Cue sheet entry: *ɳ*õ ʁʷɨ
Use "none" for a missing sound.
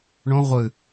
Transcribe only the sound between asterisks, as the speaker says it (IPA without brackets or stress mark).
ɳ